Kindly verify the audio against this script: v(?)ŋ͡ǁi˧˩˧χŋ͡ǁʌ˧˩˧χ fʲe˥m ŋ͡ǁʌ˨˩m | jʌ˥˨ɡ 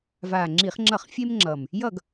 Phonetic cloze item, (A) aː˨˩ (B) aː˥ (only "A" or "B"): A